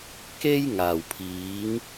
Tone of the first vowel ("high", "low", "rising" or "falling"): high